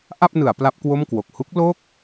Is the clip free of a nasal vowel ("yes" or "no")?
yes